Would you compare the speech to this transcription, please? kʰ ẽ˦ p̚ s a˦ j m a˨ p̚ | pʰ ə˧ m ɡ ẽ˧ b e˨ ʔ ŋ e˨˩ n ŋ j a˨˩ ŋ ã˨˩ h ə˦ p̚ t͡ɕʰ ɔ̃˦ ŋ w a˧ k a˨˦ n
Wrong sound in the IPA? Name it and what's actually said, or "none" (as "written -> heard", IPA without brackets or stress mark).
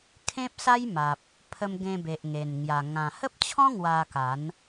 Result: none